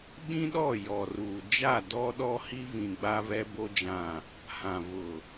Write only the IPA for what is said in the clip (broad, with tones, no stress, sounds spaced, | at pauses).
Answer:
ɓ ĩ˦ ɗ ɔ˦˨ j ɔ˨ r uː˨ d͡ʒ a˦˨ d ɔ˦ ɗ ɔ˦ h i˦ v ĩ˨ ɡ͡b a˦ v ɛ˦ b o˦ d͡ʒ ã˦˨ | h ã˨ v ʊ˨